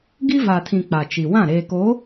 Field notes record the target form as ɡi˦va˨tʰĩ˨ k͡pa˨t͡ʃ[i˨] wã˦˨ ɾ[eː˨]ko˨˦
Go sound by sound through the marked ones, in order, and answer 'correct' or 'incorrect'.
correct, correct

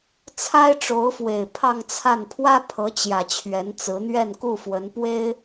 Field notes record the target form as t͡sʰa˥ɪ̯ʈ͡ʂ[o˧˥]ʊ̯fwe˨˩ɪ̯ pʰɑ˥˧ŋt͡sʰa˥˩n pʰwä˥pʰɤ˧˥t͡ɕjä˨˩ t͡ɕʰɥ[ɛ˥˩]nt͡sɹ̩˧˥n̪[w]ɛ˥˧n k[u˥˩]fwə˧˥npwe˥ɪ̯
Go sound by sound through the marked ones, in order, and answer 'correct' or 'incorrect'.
correct, incorrect, incorrect, correct

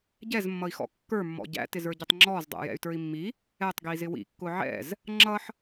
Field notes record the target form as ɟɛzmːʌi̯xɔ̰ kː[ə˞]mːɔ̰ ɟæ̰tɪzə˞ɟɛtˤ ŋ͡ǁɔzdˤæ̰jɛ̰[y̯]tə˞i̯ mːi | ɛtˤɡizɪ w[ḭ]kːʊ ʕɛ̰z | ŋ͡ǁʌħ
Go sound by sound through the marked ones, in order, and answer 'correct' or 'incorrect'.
correct, correct, correct

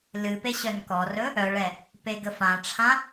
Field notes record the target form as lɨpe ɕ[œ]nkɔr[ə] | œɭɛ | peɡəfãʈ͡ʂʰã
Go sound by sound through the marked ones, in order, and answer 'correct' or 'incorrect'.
correct, incorrect

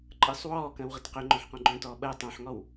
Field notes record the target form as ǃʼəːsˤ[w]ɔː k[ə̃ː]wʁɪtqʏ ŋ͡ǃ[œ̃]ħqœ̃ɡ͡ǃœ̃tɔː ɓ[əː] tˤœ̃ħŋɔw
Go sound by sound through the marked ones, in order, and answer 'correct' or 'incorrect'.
correct, correct, correct, correct

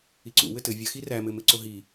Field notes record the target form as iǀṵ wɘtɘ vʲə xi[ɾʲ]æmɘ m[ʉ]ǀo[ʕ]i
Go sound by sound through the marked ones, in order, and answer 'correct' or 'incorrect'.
incorrect, incorrect, incorrect

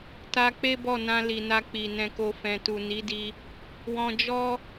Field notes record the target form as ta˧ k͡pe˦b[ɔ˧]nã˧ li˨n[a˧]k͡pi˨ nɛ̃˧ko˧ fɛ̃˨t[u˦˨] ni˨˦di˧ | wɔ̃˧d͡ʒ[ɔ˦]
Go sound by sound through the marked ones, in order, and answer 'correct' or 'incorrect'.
incorrect, correct, incorrect, correct

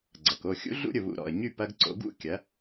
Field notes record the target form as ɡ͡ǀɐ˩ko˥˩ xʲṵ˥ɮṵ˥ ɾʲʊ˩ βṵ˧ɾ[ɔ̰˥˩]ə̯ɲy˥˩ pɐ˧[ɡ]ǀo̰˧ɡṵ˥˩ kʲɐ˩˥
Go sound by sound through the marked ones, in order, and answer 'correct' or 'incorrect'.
incorrect, correct

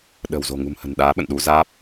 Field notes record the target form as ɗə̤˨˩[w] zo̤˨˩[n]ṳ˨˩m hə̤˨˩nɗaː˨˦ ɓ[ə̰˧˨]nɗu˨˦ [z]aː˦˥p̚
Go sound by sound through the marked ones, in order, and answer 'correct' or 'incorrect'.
correct, incorrect, correct, correct

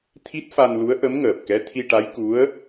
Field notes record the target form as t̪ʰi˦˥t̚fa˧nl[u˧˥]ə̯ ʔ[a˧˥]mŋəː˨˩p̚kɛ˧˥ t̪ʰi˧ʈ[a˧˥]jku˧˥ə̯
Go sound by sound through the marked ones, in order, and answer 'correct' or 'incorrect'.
correct, incorrect, correct

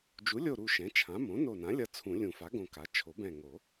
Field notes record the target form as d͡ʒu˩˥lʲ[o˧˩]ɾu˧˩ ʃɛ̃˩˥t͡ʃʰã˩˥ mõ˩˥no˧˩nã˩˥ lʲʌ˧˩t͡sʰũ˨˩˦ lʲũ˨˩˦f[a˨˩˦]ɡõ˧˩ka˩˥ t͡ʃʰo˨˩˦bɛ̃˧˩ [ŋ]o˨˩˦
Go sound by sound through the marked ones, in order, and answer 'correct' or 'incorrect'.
correct, incorrect, correct

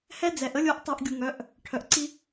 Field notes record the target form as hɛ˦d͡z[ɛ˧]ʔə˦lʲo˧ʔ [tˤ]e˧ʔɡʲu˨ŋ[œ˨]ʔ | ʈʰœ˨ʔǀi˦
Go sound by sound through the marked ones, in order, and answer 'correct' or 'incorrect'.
incorrect, correct, incorrect

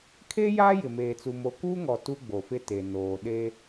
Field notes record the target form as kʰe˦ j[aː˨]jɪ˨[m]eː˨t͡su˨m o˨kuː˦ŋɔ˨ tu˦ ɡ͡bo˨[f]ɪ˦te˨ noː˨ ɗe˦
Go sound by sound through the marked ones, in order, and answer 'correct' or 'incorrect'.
incorrect, correct, correct

